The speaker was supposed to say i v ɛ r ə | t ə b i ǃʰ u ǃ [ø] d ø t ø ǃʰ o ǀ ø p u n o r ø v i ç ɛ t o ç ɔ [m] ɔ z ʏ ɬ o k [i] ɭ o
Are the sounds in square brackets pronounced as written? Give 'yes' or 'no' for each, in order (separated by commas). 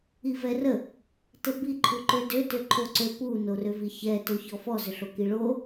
yes, no, yes